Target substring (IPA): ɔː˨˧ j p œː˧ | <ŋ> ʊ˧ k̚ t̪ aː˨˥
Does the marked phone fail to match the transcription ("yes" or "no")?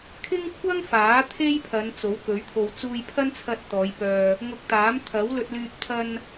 no